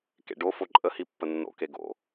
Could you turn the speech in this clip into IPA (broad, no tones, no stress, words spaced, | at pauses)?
kḛɖo foǃʼə hipːənːo̰ keɡo̰